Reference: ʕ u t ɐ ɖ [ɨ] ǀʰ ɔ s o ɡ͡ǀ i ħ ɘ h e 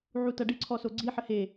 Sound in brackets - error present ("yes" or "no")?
no